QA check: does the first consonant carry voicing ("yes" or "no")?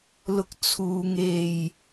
yes